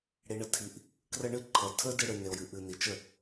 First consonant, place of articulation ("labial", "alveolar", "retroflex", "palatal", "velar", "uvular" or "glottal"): retroflex